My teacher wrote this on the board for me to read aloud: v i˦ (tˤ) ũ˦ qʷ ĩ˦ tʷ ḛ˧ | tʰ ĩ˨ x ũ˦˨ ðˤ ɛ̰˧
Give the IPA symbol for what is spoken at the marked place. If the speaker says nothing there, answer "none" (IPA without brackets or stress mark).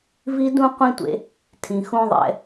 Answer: d